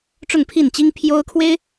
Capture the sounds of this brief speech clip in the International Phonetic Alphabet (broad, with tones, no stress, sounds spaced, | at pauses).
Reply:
ʈ͡ʂ ʊ˥˧ ŋ pʰ i˥˩ n t͡ɕ i˥ ŋ pʰ j o˥ ʊ̯ kʰ w e˥ ɪ̯